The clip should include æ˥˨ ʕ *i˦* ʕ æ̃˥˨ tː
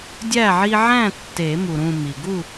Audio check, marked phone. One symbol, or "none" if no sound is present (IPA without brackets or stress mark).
i˦